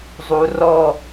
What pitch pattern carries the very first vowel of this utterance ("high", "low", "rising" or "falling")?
low